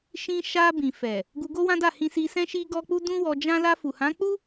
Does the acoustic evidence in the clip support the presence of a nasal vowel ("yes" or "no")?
yes